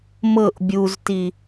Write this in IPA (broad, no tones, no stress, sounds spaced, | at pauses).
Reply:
m ɤ ʔ bʲ u z t i